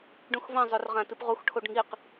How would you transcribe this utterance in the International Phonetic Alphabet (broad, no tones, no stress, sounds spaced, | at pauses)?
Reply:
ɖ ũ x v ɐ̃ zˤ ɵ r ʁ ã t ɨ p ʁ u x ʈʰ o ɖ ŋ i q